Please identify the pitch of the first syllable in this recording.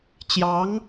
rising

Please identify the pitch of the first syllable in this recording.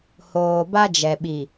low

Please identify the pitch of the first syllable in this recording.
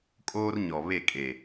high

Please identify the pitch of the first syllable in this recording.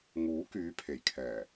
rising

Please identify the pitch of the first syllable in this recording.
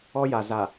high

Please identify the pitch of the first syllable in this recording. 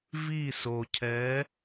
falling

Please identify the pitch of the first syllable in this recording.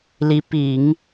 rising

